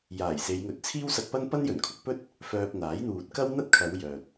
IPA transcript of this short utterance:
j aː˨˩ j s e˨˧ j ŋ ɵ˨˥ t̚ t͡sʰ iː˥ w s ɐ˧ k̚ p ɐ˥ n p ɐ˥ n j ɵ˨˩ n kʰ ʊ˨˥ k̚ p ɵ˥ t̚ | f œː˧ p̚ n̪ aː˨˥ j n̪ uː˨ t̚ k ɐ˥ w n̪ ɐ˥ t̚ kʰ ɐ˨˧ w j œː˨ t̚

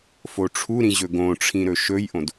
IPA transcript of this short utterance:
f o ʈ͡ʂʰ u ɾ ĩ ʑ ɵ ɡ õ ʈ͡ʂʰ ĩ ɾ ɵ ʃ ɵ j ʔ õ d

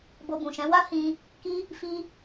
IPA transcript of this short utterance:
b o˧ b ũ˨ ʃ ɛ̃˨˦ w a˦ h ĩ˧ | k i˧ | f i˧

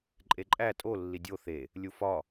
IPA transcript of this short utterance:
ǃʼ e ǃʼ æ tʼ o lː i dʲ o θ e | lʲ u f ɒ

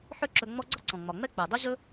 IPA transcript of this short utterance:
ħ ø˦ ǁ ɵ˨ ŋ͡m ɔ˦ ɡ͡ǀ ɒ˥ ǀ ɔ̃˩ ŋ͡m ɒ˩ ŋ͡m ɛ˥ k͡p ø˩ dˤ ɵ˥ ʑ ɵ˥

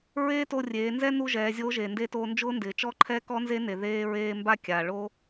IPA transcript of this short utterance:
ɹ eː˥ t o˧ rʲ eː˩˧ n z ɛ˥ n u˧ ʒ ɛː˩˧ zʲ o˧˥ ʒ e˩ n d e˧˥ t o˧ n d͡ʒ ʊː˥ n d ɪː˩˧ t͡ʃ ɔ˧˥ ǃʰ ɛ˧˥ k ɔ˧˥ n z e˧˥ n e˩ ð eː˧ ɹ eː˧ m b a˥ kʲ a˩ ɭ o˥

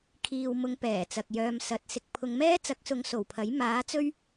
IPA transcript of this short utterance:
kʰ iː˨ w m ʊ˨˧ ŋ p ɛː˨˩ t͡s ɐ˨ k̚ j œː˧ m s ɐ˨˥ t̚ s ɪ˧ k̚ pʰ ʊ˨˧ ŋ m ɛː˥ t͡s ɐ˨˥ k̚ s ʊ˨˧ ŋ s o˨˩ w pʰ ɐ˨˥ j m aː˨˥ t͡s ɵ˥ ɥ

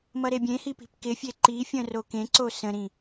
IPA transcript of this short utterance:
m ʌ ɾ e bʲ ẽ h i p i̤ p k ɪ fʲ e ǃ i fʲ ə̃ r o k ẽ ǀ o s ə̃ ɾ ĩ

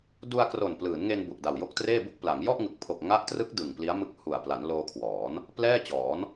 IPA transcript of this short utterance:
d u˧ a̯ k r o˨˩ n p l ɯː˩˦ n ŋ e˧ n b u˨˩ ʔ d a˨˩ w j o˥˩ k̚ t r eː˥˩ b u˥˩ k̚ p l a˩˦ ŋ j ɔ˥˩ ʔ ŋ ɯ˨˩ k̚ pʰ o˨˩ k̚ ŋ a˦˥ ʔ t r ɯ˦˥ k̚ d ɯ˨˩ ŋ p l i˦˥ a̯ m ɯ˦˥ k̚ h u˨˩ a̯ p l a˩˦ n l oː˧ kʰ w ɔː˩˦ n | p l ɛː˥˩ t͡ɕ ɔː˩˦ n

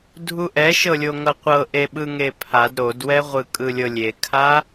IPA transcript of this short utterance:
dʱ u ʔ ɛ ʃ ɤ lʲ o ŋ ɤ qʷ ɤ ʔ e ɓ ɯ ŋ e pʰ a d ɾ o d w ɛ ʁʷ ɯ kʼ ɯ lʲ ɤ lʲ e kʰ a

